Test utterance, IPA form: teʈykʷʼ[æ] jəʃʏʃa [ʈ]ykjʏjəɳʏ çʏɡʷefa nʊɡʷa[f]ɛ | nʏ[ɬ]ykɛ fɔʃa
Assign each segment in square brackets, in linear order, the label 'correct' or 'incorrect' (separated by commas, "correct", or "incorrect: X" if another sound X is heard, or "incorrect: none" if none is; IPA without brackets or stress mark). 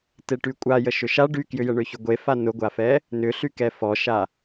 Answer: incorrect: a, incorrect: ɖ, correct, correct